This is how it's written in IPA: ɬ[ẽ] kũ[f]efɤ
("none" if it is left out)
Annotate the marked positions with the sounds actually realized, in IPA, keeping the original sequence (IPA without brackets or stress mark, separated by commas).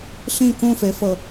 ĩ, f